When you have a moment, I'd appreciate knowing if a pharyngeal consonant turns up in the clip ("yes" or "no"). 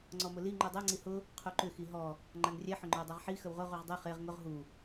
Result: yes